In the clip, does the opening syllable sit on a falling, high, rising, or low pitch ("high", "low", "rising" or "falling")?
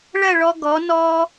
falling